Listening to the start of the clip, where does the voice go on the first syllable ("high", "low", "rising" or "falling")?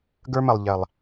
high